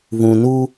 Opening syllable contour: low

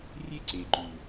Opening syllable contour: high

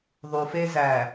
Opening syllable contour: low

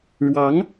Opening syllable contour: rising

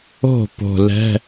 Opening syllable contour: falling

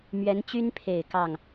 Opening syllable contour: rising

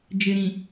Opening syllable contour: low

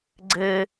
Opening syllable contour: high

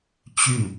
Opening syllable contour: falling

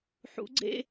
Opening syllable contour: rising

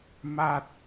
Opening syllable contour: high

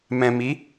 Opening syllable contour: low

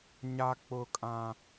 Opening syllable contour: high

